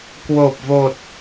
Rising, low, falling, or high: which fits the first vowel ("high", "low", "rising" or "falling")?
low